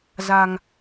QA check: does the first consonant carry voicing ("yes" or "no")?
yes